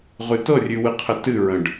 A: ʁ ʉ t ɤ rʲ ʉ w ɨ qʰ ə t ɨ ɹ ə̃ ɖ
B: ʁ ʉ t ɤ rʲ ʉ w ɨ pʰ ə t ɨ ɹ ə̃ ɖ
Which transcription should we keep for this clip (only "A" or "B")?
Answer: A